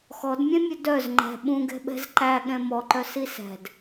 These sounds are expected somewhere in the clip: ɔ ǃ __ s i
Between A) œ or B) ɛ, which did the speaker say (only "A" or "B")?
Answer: A